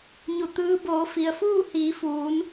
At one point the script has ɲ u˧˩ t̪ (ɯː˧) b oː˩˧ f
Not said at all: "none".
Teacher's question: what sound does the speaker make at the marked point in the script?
ɯː˧˥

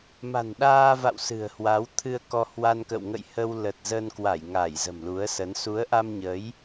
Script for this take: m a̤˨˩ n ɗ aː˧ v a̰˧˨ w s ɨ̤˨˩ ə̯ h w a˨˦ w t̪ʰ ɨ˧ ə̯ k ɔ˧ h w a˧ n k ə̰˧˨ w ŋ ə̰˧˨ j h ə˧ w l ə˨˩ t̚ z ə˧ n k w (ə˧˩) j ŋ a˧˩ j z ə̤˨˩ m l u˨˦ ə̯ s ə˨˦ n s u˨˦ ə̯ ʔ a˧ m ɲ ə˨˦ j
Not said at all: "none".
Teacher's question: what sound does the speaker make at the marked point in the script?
a˧˩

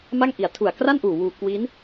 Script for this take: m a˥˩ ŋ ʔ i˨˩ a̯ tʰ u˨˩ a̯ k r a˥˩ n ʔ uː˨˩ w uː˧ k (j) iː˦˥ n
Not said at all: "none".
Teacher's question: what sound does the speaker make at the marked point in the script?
w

